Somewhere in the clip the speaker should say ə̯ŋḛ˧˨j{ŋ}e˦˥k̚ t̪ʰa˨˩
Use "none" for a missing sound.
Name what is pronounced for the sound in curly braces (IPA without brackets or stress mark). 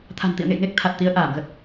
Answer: ŋ